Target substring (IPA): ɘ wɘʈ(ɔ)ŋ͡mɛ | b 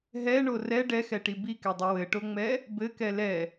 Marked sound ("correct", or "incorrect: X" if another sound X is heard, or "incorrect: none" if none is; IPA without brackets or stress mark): incorrect: o